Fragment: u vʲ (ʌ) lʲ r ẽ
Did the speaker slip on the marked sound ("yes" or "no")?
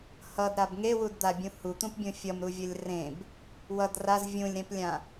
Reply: no